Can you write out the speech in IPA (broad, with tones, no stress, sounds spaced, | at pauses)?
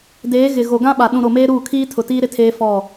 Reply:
d eː˨˦ ɣ ɪ˨ ɣ o˨ ɡ ã˦ ɓ a˨ ɗ ũ˨ ɾ o˨ m eː˦ ɾ uː˦˨ kʰ iː˦ tʰ ʊ˨ t iː˦ ɾ ɪ˦ tʰ eː˦ f ɔ˦˨